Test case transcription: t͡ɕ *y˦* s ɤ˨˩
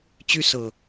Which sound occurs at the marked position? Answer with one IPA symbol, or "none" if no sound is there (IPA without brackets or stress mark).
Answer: y˦